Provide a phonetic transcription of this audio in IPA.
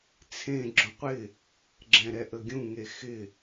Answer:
t͡sʰẽ ɡ͡ǁõqʷɪ | ɡ͡ǁɛ̃ɾɛʔəɡʲũ ŋexɪ

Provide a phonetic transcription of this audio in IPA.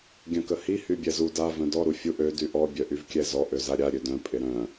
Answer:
ɡʲœ̃kəhi hybʲɛzu da vœ̃dɔ ɾufʲuʔ ø dyʔɔ bʲœʔyvkʲɛzɔ ʔøzaɾʲa ɾʲødœ̃ pʼɪɾœ̃

